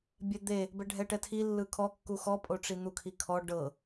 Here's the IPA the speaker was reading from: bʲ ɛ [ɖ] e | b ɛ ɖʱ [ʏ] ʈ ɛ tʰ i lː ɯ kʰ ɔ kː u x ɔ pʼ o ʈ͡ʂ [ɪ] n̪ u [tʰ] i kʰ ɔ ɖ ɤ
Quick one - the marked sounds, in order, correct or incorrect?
incorrect: d̪, incorrect: ɛ, incorrect: i, incorrect: kʰ

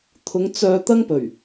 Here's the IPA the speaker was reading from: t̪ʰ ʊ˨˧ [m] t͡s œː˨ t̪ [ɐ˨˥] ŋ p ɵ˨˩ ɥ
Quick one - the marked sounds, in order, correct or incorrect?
incorrect: ŋ, incorrect: ɐ˥

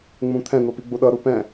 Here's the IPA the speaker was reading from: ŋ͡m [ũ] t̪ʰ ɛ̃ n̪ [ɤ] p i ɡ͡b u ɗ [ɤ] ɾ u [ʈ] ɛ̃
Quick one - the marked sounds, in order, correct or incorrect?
correct, incorrect: o, correct, incorrect: p

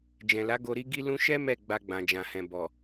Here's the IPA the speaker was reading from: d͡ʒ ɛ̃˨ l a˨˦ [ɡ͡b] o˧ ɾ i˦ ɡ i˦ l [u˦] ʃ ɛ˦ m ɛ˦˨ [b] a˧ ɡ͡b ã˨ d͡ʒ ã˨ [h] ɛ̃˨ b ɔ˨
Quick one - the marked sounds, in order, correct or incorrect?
incorrect: ɡ, incorrect: ũ˦, incorrect: ɡ͡b, correct

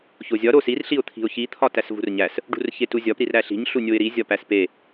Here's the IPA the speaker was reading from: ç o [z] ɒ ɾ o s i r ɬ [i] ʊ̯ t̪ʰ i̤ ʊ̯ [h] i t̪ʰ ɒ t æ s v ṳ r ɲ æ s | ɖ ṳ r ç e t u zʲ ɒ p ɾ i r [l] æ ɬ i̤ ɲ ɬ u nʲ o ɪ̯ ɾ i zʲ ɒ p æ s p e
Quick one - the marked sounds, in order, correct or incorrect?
incorrect: zʲ, correct, incorrect: ç, incorrect: ɾ

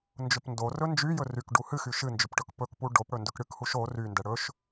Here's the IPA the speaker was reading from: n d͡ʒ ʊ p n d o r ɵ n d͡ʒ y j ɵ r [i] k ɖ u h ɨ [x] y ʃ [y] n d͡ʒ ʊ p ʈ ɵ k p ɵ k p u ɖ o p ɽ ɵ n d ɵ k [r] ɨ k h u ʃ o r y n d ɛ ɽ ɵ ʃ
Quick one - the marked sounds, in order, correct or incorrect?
incorrect: y, correct, incorrect: ɨ, incorrect: ɽ

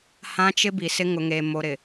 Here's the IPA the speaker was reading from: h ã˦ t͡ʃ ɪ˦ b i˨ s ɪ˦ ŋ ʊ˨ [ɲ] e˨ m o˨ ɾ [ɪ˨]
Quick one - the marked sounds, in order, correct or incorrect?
incorrect: ŋ, correct

